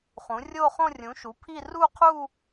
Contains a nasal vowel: yes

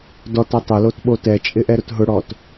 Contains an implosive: yes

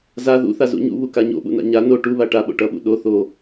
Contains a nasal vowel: no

